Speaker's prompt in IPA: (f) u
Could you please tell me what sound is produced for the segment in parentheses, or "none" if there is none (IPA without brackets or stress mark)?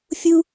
fʲ